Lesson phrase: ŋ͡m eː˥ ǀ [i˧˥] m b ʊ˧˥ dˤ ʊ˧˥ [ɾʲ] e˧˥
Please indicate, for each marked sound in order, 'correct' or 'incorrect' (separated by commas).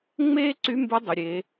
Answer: incorrect, correct